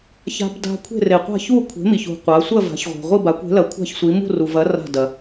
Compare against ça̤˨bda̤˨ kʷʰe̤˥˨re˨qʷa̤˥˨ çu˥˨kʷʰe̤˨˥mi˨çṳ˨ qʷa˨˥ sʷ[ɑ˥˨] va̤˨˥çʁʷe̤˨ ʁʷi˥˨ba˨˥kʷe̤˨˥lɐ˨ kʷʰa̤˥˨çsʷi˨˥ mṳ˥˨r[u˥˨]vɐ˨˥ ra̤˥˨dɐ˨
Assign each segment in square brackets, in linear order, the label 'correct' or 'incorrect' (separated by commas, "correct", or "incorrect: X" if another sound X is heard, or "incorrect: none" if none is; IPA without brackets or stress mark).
incorrect: ɐ˥˨, incorrect: u˨